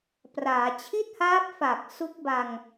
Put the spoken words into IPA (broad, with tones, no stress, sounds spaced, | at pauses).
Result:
p r aː˩˦ t͡ɕʰ i˥˩ t̚ h aː˦˥ p̚ f a˨˩ k̚ s u˦˥ k̚ b a˧ ŋ